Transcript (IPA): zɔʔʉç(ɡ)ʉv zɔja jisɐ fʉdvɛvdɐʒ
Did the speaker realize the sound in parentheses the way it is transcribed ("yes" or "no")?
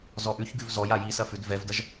yes